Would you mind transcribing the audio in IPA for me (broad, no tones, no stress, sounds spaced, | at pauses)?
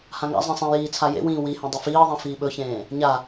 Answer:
h ã ŋ a̰ zˤ ẽ sˤ ẽ j iː t͡sʰ a j ḛ w ĩː w i h ĩ dˤ ɵ f iː ðˤ ĩ f iː ɓ ɵ ç ẽː | ɲ a